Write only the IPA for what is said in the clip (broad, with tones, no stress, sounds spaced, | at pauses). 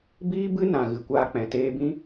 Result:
b iː˦ b ɨ˦ n ã˨ ɣ ɨ˨ kʷ aː˧ k͡p ɛ̃˨ t eː˧ b ĩ˦